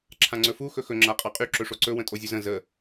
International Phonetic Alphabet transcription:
ǁʰ ã ŋ͡ǀ ɵ f u x ɵ x ɵ ŋ͡ǁ a qʼ ɑ qʼ y ǁ ɵ ʂ o ǀ ɵ w ə̃ tʼ o zʲ ɵ z ə̃ z ə

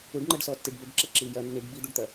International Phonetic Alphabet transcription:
u ɖ ŋ͡ǃ ɐ ɖ s ɔ tː i ɖ b ɵ ɖ ǁ ɐ ǁ iː j ɐ nː i ɖ b i d̪ u ɖ t̪ ɐ

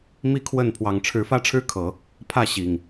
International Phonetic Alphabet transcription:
m i˥˨ kʰ w ə˥˨ n pʰ w ɑ˨˩ ŋ ʈ͡ʂʰ ɻ̩˨˦ f ä˦ ʈ͡ʂʰ ɻ̩˦ kʰ ɤ˨˦ | pʰ ä˥˨ ɕ i˨˩ ŋ

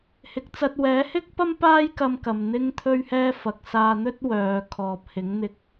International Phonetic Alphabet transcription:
h ɪ˨ k̚ t͡s ɐ˧ t̚ w ɛː˨˥ h ɪ˥ k̚ p ɐ˥ m p aː˥ j k ɐ˧ m k ɐ˨ m n̪ ɪ˧ ŋ t̪ʰ ɵ˧ ɥ h ɛː˧ f ɐ˨ k̚ s aː˧ n̪ ɵ˥ t̚ w œː˨˧ kʰ ɔː˨ p̚ h ɪ˨˥ ŋ n̪ ɪ˧ k̚

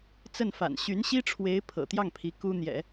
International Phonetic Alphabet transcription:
t͡s ə˥˩ n f a̰˨˩ n ɕ y˧˥ n ɕ i˥ ʈ͡ʂʰ w e˧˥ ɪ̯ pʰ ɤ̰˨˩ t̪ j ɑ˥˩ ŋ pʰ i˧˥ k u˥ n̪ j ɛ̰˨˩˦

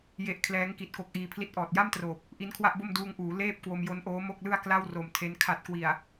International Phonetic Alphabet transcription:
j e˥˩ ʔ kʰ l ɛː˦˥ ŋ k i˨˩ t̚ k o˦˥ k̚ ʔ iː˧ pʰ l i˥˩ t̚ ʔ ɔː˨˩ t̚ j a˥˩ m t r oː˨˩ p̚ | ʔ i˦˥ n kʰ w a˥˩ ʔ b o˥˩ m d uː˧ ŋ ʔ uː˩˦ l eː˥˩ p̚ k w o˧ m j o˦˥ n ʔ oː˦˥ m o˥˩ k̚ l ɯ˥˩ a̯ k l a˥˩ w r o˨˩ m tʰ e˦˥ n kʰ a˨˩ t̚ k w i˨˩ a̯

